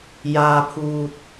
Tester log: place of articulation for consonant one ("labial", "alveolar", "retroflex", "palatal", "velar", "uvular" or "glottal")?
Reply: palatal